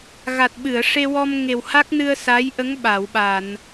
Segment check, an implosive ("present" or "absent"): present